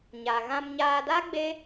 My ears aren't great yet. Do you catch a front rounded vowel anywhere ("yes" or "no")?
no